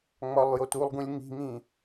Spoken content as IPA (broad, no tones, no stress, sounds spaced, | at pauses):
ŋ͡m ɒ lˠ j o t u lˠ ɡ ũ lʲ ŋ i̤ ŋ ĩ